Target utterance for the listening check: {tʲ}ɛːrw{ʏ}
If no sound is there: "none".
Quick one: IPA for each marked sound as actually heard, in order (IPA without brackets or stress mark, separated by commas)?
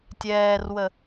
tʲ, ə